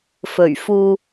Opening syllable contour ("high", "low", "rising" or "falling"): low